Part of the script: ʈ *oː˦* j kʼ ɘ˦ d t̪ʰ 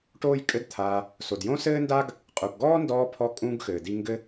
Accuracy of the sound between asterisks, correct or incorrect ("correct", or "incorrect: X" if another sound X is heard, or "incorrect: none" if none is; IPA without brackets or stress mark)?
correct